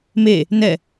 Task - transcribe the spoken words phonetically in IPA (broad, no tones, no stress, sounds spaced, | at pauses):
m e | n ɛ